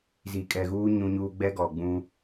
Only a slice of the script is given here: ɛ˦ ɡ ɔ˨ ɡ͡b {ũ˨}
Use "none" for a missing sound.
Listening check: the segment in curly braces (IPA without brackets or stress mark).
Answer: ũ˦